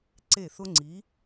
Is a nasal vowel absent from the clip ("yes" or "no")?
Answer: yes